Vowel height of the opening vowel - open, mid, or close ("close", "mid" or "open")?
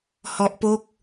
mid